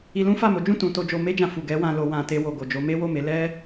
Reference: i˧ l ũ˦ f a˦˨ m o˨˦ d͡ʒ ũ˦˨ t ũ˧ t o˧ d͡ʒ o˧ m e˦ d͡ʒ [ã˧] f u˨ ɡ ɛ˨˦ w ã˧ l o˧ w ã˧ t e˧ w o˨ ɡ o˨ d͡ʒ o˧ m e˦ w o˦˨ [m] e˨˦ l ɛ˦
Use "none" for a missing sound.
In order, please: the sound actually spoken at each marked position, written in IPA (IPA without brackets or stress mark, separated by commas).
ã˧, m